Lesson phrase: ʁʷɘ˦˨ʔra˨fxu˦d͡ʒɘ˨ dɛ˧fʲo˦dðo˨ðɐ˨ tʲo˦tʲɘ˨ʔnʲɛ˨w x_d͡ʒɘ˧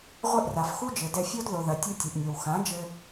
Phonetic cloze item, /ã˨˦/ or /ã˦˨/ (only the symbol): ã˨˦